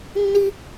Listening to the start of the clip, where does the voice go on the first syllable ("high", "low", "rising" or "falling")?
high